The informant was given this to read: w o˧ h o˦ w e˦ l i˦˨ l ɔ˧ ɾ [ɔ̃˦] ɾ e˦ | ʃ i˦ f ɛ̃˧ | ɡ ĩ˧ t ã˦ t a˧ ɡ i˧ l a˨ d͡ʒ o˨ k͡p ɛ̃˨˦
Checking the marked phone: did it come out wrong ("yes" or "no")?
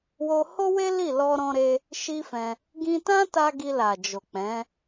no